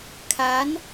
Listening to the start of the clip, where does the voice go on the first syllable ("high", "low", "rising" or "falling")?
rising